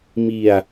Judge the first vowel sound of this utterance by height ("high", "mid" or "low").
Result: high